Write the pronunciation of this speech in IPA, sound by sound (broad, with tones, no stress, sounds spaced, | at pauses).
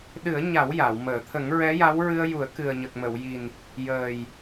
ɗ ɨ˨˩˦ ə̯ ɲ a˨˩˦ w j a˨˩˨ w m əː˨˩˨ t̪ʰ ə˨˩˦ ŋ ɹ ɛ˧˥ j a˧˥ w ɹ ɨ˧ ə̯ j u˨˩˦ ə̯ k ɨ˨˩ ə̯ ɲ ə˨˩ k̚ m ə˨˩˨ w j i˨˩ n | j əː˨˩ j